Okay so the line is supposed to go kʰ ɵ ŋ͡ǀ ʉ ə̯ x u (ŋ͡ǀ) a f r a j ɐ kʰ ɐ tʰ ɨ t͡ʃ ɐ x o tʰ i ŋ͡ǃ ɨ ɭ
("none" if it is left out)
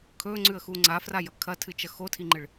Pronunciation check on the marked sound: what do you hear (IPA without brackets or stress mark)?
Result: ŋ͡ǀ